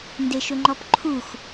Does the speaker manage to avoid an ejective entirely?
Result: yes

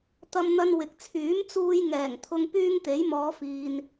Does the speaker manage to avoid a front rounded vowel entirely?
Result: no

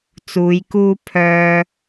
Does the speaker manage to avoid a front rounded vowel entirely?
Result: no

